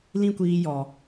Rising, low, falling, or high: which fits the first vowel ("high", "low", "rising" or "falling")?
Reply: high